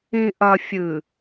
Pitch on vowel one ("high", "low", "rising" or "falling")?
low